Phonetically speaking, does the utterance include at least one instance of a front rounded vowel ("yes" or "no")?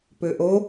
yes